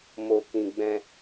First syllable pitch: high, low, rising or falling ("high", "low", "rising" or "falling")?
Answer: low